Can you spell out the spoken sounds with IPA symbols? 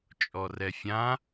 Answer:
t͡ʃʼ ɔ r ɛ fʲ ã

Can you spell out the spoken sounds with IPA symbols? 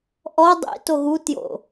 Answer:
ʔ ɔ dˤ ḭ t o ɣ u t j o̰

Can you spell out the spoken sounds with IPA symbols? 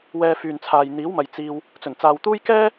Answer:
w ɛː˧ f yː˨ n t͡sʰ aː˨ j n̪ iː˨˥ w m ɐ˨ j t͡s iː˧ w | t͡s ɵ˨˩ n t͡s aː˨ w t̪ uː˥ j k ɛː˥

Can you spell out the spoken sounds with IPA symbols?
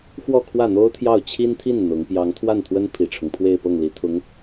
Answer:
x w ɔ˥˧ kʰ w ä˥˩ n̪ o˥ ʊ̯ t̪ʰ j ɑ˥˩ ʊ̯ t͡ɕʰ i˥ n t̪ʰ i˥˩ n n̪ ʊ˧˥ ŋ p j ɑ˧˥ ŋ t̪ʰ w a˥˩ n t̪ʰ w ə˥ n pʰ i˨˩ ʈ͡ʂʰ ʊ˦ ŋ pʰ w e˥˧ ɪ̯ p ɤ˥˩ ŋ l i˧˥ t̪ʰ ʊ˧˥ ŋ

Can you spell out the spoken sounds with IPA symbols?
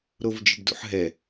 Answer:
ɾ o v d͡ʒ ɪ ɖ d ṵ ħ ɦ ɛ

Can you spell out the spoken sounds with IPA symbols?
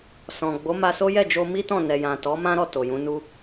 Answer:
s ɔ̃˨ ɡ͡b o˨˦ m a˧ s o˦ j ɛ˦˨ d͡ʒ o˧ m i˦ t ɔ̃˦˨ n ɛ˨ j ã˨ t ɔ˨˦ m ã˦ ɾ ɔ˦˨ t o˨ j ũ˨˦ n u˦

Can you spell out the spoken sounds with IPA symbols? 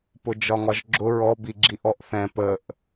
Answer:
p ʊ d͡ʒ ɒ ŋ ɒ ʒ ɡ͡ǁ ʊ ɹ ɔ b i ɡ͡ǁ i ʔ ɔ ʔ θ ɛ̃ p ə ʔ

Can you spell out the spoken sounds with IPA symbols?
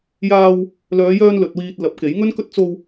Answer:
j aː˧ w | l œː˨˧ j œː˧ n l ɵ˨ t̚ w iː˧ t̚ l ɐ˨˥ p̚ k e˨˥ j ŋ ɵ˥ n k ɵ˥ t̚ t͡s o˧ w

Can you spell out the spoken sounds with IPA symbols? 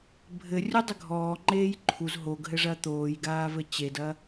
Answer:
bʱ ɘ rʲ u dˤ ɘ ɡʱ ɔː ŋ͡ǃ eː j ǃʰ u z ɦ o ɡ ɦ ɘ ʐ ɐ t̪ oː j ɡ aː v ɘ t͡ɕ e d ɐ

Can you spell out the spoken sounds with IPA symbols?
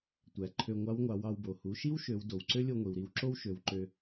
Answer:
tʷ æ˩ ǃʰ ø˧ ŋʷ ɑ˧˥ w ŋʷ ɑ˩˧ w ɑ˧ w b o˩ h u˩˧ ʃ i˥ w ʃ ø˩˧ w d o˩ w ǀ ø˥ lʲ o˧ ŋʷ i˩ w ɾ i˧ w ǁ o˥ w ʃ ø˩˧ w ǃ ø˧

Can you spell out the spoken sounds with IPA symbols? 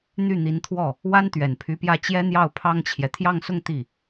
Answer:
n̪ y˥˩ n̪ i˧˥ n t̪ʰ w ɔ˥˩ | w a˥ n t̪ ɥ ɛ˨˩ n pʰ y˧˥ p j ä˥˩ t͡ɕ j ɛ˥ n̪ j ɑ˥˩ ʊ̯ pʰ ɑ˥ ŋ t͡ɕʰ j ɛ˨ t̪ʰ j ɑ˥˧ ŋ s ʊ˥˧ ŋ t̪ i˥˩

